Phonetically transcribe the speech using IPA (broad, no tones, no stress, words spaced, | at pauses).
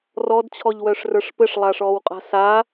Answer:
rɔdt͡ɕʰɔʎwœʂrə˞ʂ pɘʂlˠaʂɔːwqʼa̤ sa